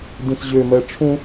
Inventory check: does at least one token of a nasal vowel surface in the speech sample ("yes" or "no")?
yes